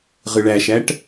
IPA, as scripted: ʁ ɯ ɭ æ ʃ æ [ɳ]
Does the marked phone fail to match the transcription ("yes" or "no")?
yes